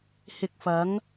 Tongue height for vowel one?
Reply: high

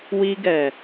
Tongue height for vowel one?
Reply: high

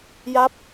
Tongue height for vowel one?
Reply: low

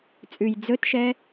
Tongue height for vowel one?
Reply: high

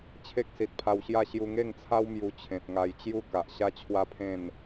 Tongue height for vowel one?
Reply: mid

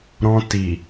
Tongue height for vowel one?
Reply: mid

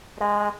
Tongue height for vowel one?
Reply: low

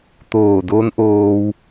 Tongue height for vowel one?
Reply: mid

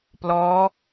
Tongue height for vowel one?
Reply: mid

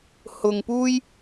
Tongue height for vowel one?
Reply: high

